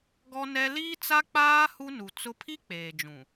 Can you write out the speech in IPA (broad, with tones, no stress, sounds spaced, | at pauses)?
ɡ ɔ˦ n ɛ˦ l iː˦ t͡s a˦ k͡p aː˦ h u˦ n u˨ t͡s ʊ˦ pʰ i˦ k͡p eː˨ d͡ʒ ũ˨